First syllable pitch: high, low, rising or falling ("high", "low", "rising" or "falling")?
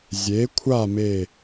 rising